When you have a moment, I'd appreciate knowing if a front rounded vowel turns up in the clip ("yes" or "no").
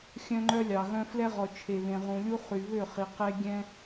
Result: yes